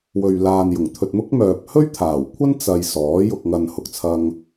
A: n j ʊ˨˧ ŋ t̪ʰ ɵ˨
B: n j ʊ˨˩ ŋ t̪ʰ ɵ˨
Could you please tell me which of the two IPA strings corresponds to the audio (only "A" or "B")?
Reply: B